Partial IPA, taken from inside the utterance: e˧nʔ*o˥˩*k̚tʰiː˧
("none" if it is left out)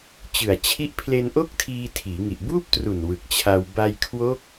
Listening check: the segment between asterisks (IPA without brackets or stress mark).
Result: o˥˩